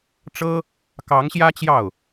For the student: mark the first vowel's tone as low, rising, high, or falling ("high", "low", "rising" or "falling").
high